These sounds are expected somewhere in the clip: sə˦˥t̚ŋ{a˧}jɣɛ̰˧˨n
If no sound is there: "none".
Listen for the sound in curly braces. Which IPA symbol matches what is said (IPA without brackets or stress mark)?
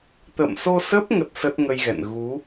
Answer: ə˧